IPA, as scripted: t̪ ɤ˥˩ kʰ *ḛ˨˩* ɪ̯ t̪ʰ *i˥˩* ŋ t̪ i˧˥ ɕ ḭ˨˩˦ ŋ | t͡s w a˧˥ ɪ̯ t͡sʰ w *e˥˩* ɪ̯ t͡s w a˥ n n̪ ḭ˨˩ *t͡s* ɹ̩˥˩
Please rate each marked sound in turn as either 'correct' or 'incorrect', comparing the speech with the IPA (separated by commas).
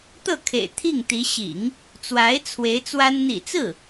correct, correct, incorrect, correct